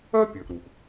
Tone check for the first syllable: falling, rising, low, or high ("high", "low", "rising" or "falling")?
high